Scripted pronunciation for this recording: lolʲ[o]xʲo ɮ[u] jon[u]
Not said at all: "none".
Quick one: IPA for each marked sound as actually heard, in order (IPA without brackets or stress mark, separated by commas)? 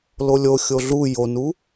o, u, u